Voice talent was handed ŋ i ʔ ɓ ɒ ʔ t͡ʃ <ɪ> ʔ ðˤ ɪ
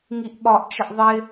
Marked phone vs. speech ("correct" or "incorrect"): incorrect